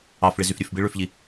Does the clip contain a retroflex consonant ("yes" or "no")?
yes